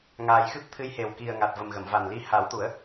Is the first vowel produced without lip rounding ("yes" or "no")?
yes